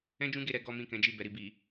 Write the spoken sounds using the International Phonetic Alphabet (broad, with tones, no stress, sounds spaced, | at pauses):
ɛ̃˦ d͡ʒ ũ˦ ɡ e˦˨ ɾ ɛ˧ ɡ ɔ˦ m ĩ˦˨ k ɛ̃˨˦ d͡ʒ i˦˨ b ɛ˨ ɾ i˨ b i˨